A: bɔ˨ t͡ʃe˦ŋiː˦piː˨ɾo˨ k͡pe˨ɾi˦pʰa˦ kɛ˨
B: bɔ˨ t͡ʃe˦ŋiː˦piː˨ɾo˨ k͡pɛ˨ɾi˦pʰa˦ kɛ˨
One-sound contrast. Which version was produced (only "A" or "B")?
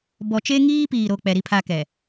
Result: B